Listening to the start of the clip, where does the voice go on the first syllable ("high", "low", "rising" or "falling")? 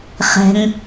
low